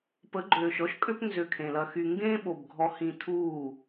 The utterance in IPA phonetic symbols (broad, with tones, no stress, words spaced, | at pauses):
pə˨˦ɡ͡ǃøː˨ʃɔ˦ʃkʼø˦p nzø˧kʰẽ˨lɐ˧xy˧ ŋɡẽː˦ɓo˨b ɡʱɔ˧hĩ˧tʰuː˦˨